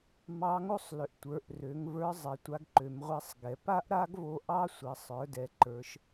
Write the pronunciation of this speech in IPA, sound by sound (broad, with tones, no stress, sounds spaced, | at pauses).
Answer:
m ɑ˧˥ ŋ o˥ sˤ l ʏ˩˧ ʔ tʷ ə˞˩˧ ʔ r ø˩˧ ŋ v ə˞˧˥ zˤ ɛ˩˧ tʷ a˧ ɡ ǃ ø˩˧ m ʁʷ ɛ˧˥ sˤ ɡ ɛ˩ p a˥ ʔ ɾ a˥ ɡ v o˧ ʔ ɑ˥ sʷ ɛ˩˧ sˤ ə˞˩˧ d ɛ˩ ǃ ə˞˩˧ ʃ